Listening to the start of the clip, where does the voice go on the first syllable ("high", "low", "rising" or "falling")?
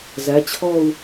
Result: rising